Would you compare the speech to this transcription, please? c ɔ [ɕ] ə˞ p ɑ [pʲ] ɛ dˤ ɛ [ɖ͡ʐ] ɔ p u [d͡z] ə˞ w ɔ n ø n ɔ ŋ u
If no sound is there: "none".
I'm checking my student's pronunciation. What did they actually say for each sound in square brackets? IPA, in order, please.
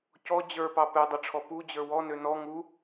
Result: d͡ʑ, p, ʈ͡ʂʰ, d͡ʑ

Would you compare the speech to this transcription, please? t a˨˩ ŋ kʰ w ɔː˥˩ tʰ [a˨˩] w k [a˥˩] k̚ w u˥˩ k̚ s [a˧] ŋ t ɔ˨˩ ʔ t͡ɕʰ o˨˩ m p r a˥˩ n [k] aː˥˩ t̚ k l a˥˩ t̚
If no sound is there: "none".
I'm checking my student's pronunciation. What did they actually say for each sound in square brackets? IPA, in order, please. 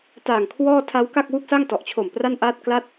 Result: a˦˥, a˥˩, a˥˩, ʔ

